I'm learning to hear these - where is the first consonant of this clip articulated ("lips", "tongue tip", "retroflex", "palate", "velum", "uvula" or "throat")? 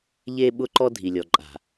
palate